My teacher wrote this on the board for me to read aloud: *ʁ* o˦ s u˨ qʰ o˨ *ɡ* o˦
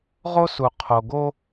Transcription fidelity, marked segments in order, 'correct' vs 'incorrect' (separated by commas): correct, correct